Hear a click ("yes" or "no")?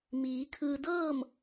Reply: no